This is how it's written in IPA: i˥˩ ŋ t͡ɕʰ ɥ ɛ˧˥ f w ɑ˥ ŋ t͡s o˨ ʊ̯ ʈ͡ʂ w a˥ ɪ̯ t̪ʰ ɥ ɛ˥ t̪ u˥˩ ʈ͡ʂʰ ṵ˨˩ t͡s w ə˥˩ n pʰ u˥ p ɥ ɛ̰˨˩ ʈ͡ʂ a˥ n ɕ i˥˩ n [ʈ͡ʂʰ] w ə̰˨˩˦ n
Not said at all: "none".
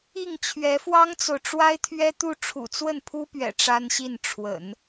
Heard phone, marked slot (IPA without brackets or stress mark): ʈ͡ʂʰ